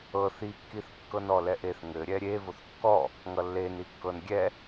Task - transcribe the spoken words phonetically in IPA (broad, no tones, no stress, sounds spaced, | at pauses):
ɤ θ i kː i θ kː ɤ n ɔ l ɛ ʔ e θ ŋ ɘ ɾʲ ɛ ɾʲ e v o θ kː ɔ | ŋ ʌ lː e n i kː ɤ n ɡʲ ɛ